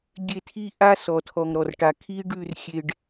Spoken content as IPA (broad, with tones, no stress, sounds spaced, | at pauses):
ɡʲ e˦˨ tʰ i˦ ʔ a˦ s ɔ˨ tʰ ɔ˨ ŋ ɾ ɔ˨ r ʈ a˨ kʰ i˦ ɖ ʉ˦˨ r xʲ e˨ ɖ